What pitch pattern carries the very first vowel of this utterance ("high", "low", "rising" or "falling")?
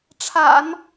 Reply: low